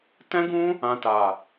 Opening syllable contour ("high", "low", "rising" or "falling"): high